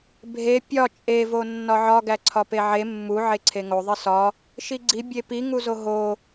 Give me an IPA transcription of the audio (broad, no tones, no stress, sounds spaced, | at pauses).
bʱ e pʲ ɒ t͡ʃʼ e v o nː ɒ ʕ ɒ ɡ æ ǀʰ ɒ p e ʕ e mː u ʕ e ǀʰ e ŋ o ðˤ i s ɒ | ʃ i ɡ͡ǀ i bʲ e p i ŋ u z o ɦ o